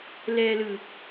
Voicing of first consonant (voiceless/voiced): voiced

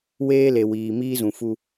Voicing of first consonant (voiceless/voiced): voiced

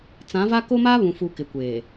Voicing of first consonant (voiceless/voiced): voiceless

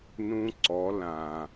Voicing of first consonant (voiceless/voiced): voiced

